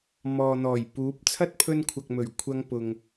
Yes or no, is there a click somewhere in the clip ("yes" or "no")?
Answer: no